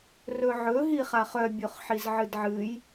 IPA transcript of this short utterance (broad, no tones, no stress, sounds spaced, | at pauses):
r ɵ ʕ ɵ ɦ i χ a χ œ bʲ o χ ħ i z ʕ ɨ d ʕ ɨ j